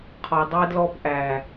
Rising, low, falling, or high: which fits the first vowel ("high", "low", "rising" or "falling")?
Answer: low